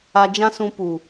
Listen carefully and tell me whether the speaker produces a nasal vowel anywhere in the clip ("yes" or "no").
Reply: yes